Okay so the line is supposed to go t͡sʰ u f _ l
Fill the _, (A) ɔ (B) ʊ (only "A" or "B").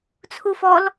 A